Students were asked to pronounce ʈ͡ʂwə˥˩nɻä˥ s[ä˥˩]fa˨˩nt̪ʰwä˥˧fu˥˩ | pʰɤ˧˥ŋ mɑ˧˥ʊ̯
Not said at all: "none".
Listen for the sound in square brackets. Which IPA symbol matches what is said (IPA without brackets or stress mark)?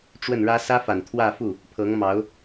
ä˥